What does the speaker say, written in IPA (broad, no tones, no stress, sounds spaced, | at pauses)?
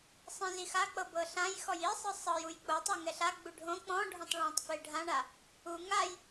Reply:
sˤ ĩ z i x a k͡p ɤ b ɤ ɬ ã j x ɔ j i sˤ ɯ sˤ ɤ j u j k͡p o tˤ ɤ ŋ ɛ ɬ a ɡ͡b u ɖʱ õ k͡p ɔ̃ ɖʱ ɔ̃ tˤ ɭ ɔ̃ tˤ f e ɖʱ ã ɳ a | u ŋ a j